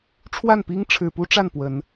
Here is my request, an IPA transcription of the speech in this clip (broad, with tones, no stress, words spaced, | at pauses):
ʈ͡ʂʰwa˥˩npi˥ŋʈ͡ʂʰɻ̩˨˩pu˥ ʈ͡ʂa˥˩npwə˨˩˦n